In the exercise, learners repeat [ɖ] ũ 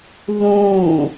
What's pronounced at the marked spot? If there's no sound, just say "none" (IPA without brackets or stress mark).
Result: ð